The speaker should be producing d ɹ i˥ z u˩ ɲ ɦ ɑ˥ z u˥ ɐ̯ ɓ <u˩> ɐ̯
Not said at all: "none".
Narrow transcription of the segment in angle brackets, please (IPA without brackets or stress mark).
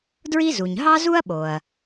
o˩